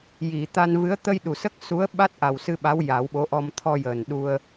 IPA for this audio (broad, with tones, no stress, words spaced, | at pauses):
ji˨˩˨t̪a˧nvɨ˧˥ə̯ t̪ə˧jɗu˨˩˨ sə˦˥k̚su˧˥ə̯ɓa˦˥t̚ ʔa˨˩wsɨ˧ɓa˧˥w ja˨˩˦wɓo˧˥ʔɔ˧m t̪ʰɔ˧jəː˨˩nɗu˧ə̯